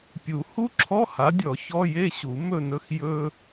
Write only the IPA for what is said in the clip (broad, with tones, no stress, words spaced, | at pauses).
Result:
pʲu˨˩˦ hu˥ǁʰɔ˧˥˧ha˨˦dʲɔ˨˩˦ çɔ˧˥˧je˥˧ɕu˨˩˦ mɵ˥˧nɵ˥x jɵ˥